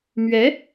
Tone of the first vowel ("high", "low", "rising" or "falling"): rising